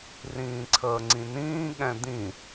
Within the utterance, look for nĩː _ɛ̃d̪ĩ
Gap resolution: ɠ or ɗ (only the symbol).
ɠ